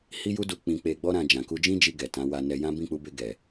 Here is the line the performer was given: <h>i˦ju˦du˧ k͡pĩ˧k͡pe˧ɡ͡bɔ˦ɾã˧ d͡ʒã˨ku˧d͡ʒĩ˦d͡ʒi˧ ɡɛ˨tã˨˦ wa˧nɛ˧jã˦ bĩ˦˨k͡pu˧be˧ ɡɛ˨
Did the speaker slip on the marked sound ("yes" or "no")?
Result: no